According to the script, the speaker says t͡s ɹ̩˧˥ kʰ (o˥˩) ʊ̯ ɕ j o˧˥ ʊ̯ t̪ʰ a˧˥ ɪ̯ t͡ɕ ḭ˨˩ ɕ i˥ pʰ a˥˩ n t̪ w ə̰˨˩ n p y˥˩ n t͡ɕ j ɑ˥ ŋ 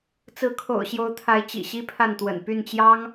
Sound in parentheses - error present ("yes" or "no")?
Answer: yes